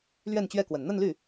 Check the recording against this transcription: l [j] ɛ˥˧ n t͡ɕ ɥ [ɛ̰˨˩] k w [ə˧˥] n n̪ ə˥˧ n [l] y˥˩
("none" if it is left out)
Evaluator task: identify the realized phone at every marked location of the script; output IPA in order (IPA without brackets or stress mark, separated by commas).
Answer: ɥ, ɛ˥˩, ə˨˩, l